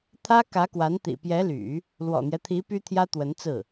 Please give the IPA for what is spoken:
t̪ʰä˥kä˧˥kwa˧˥n t̪ḭ˨˩pjɛ˧˥ly̰˨˩˦ | lwɔ̰˨˩n̪jɛ˦t̪ʰi˧˥ py˥t̪ʰjä˥t̪wə˧˥nt͡sɹ̩˥˩

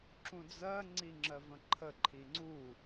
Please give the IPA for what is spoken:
ǁũd͡zɜ ŋ͡ǀiŋ͡ǁɜvə̃ǃʰə ǃʰiŋ͡ǀu

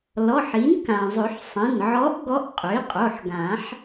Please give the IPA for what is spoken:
lɔ˩˧˩ħi˩˥n kã˩zˤø˨˩˦ħ sˤɛ̃˩˧˩nʕɔ˧˥ʔ ɡɔ˧˥ʔqʼø˩˥i̯qʼo˩˧˩ħɡã˨˩˦ħ

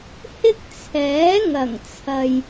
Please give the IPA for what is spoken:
hɪ˥k̚t͡sʰɛː˨˥ ŋɐ˨˩ŋt͡sʰɐ˨j

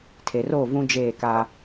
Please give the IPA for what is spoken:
tʰe˨roː˦˨vũ˦ d͡ʒeː˦˨ka˦

